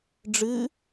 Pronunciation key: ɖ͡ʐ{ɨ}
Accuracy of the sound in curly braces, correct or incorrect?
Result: correct